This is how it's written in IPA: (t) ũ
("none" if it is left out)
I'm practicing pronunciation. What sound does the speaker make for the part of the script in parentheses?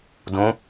d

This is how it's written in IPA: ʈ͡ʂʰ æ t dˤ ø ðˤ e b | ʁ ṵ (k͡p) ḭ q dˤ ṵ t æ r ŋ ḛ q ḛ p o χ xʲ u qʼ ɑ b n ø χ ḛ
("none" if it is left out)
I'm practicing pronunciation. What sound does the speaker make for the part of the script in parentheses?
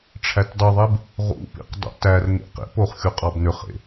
p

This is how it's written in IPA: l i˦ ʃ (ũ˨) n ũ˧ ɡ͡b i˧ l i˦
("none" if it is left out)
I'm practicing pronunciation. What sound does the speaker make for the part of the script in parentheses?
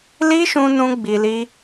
ũ˧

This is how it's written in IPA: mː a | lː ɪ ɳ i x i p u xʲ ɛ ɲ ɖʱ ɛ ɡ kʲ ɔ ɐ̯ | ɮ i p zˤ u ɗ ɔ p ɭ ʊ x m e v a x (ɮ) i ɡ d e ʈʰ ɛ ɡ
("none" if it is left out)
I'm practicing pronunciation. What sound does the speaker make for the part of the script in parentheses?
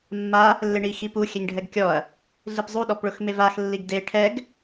lː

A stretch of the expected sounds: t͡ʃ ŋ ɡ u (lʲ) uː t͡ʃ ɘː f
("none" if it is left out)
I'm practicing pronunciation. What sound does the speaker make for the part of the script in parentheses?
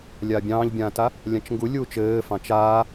lʲ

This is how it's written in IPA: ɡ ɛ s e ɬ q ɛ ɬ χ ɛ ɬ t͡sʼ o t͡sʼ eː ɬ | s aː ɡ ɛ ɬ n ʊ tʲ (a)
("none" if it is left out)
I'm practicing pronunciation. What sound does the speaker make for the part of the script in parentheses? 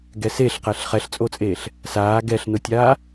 aː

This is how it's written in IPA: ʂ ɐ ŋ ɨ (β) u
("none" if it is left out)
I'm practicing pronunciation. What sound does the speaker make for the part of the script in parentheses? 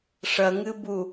b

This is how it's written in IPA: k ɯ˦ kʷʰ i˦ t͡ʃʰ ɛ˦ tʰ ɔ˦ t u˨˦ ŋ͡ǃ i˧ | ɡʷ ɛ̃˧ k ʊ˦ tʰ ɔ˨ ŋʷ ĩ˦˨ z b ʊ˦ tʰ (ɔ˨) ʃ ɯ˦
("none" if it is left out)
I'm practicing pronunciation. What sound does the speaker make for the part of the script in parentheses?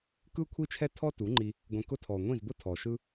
ɔ˨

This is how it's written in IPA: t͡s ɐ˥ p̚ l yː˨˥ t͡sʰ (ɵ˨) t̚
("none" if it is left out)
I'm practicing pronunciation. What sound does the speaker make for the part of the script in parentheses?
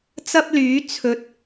ɵ˨˥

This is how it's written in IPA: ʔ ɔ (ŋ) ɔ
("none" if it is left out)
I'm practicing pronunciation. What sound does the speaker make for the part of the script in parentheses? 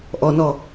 n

